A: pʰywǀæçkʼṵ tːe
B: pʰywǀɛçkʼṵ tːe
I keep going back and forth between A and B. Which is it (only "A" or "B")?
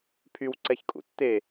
B